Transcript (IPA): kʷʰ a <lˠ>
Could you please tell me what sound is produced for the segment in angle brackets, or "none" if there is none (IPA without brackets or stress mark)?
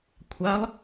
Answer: lˠ